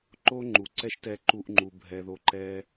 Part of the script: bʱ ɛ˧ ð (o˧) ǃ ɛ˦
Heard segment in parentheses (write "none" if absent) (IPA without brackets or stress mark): o˧